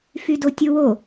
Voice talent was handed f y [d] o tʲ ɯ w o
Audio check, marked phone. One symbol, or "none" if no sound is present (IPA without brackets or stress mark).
d